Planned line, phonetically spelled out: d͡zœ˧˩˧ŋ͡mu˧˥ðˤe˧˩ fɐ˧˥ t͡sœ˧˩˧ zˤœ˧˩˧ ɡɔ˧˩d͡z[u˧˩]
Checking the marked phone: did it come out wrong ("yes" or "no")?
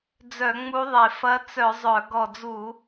yes